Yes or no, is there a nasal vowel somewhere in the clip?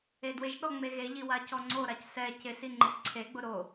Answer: no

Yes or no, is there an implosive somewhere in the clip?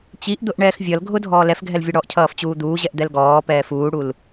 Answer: no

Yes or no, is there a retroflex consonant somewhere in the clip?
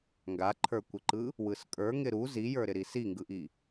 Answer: no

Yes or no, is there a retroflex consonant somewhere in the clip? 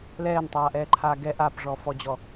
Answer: yes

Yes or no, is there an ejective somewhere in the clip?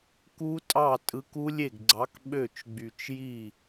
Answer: yes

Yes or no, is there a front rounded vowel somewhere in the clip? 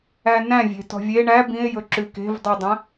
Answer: no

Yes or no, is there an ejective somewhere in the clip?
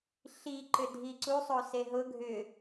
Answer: no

